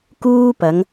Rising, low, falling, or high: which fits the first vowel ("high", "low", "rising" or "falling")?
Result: high